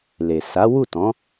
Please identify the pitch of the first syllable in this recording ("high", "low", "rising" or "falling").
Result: low